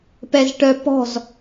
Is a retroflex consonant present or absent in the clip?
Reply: present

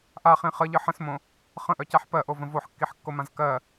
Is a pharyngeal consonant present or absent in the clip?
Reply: present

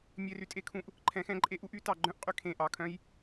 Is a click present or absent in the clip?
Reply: present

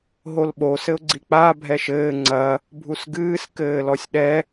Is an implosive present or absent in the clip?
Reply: present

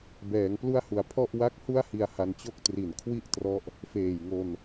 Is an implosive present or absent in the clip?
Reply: absent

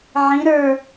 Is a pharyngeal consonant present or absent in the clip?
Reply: present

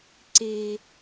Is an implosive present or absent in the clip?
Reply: absent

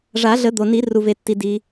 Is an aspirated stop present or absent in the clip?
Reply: absent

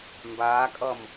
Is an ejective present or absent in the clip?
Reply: present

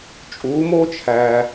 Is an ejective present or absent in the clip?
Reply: present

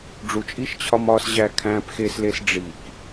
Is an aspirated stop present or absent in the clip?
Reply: present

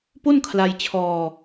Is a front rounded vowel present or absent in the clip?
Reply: absent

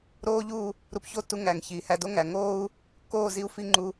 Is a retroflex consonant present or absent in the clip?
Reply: absent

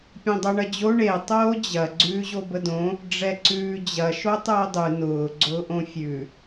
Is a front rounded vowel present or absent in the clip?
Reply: absent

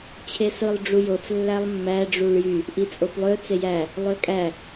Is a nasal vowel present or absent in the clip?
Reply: absent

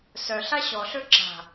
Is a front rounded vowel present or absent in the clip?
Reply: present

